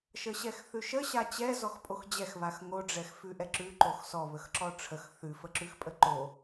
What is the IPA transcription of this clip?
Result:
ʃ ə ɕ ɛ x θ ʉ ʃ ə ɕ a t͡ɕ ɛ z ɔ x pʼ o x d͡ʑ ɛ x β a x ŋ o ɖ͡ʐ ɛ x f ʉ ʔ ɛ ǁ ʉ ǃ o x s ɔ β ə x ǁ ɔ ʈ͡ʂʰ ə x θ ʉ f ə ǁ ʉ x pʼ ə ǃ o

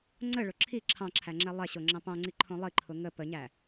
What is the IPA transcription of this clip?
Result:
ŋ͡ǀ ə ɭ ʊ ǁʰ i ǁʰ ɑ̃ ǁʰ æ ŋ͡ǁ ɛ lˠ ɛ ɕ o ŋ͡ǁ ɑ̃ p ɑ̃ ŋ͡ǀ i ǃʰ õ lˠ i ǃʰ ʊ ŋ ə p ə ɲ æ

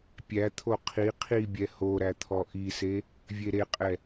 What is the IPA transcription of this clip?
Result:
pʲ æ t̪ʰ o qʰ i qʰ i bʲ ɛ h o ɾ æ t̪ʰ ɔ ʔ i s e | vʲ e ɾ e qʼ ɛ

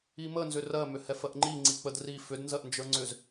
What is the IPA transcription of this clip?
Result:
i m ə n z ʏ r ɜ m ʏ h ɛ f ɜ ʔ ŋ͡ǃ i ŋ͡ǀ i k͡p ə d r i f ʏ d n z ɜ ʔ n d͡ʒ ə˞ ŋ͡ǀ ʏ z

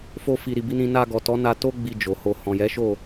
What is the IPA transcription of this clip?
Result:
f o˧ f i˨ ɾ i˨ b i˧ n ĩ˧ n a˧ ɡ ɔ˨ t ɔ˨˦ n a˧ t o˦ ɡ͡b i˧ d͡ʒ o˨ h o˧ h ɔ̃˨ j ɛ˨˦ ʃ o˦˨

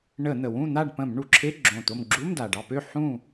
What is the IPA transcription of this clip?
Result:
ɳ ə˧˩˧ n̪ ə˩ w ũ˥˨ n̪ a˥˨ ɖ p ə̃˧˩˧ m ɳ u˩ ǁʰ e˧˥˧ ɡ͡ǁ õ˧˩ t̪ o˥˨ m ɡ͡ǁ u˧˥˧ m d a˩ ɖ ɑ˥˨ p ø˥˨ ħ ũ˥˨

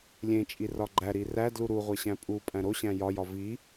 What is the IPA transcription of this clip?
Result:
lʲ ẽ t͡ʃʼ i r ɒ ɡ͡ǃ æ ɾ i r æ d l u ɾ u ʁʷ e ɕ æ̃ pʼ u pʼ æ̃ ɾ o ɕ æ̃ j ɒ j ɒ v i

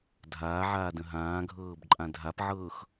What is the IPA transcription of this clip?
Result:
dʱ aː ʕ aː d ə̃ ɦ ãː ɡʱ ɤː b ǃʼ ã dʱ a p ʕ ɤː x

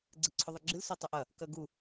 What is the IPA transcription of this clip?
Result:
ɡ͡ǀ ɨ ǀʰ ɵ ðˤ ɨ ɡ͡ǁ ɨ l s o tˤ ɵ ʔ ɐ | k ɐ ɡ u

